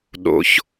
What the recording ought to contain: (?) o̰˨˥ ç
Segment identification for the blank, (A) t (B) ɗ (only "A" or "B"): B